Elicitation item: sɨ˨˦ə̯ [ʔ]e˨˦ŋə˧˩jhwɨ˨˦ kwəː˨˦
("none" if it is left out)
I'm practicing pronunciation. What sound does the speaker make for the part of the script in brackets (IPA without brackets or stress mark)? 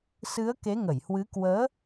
k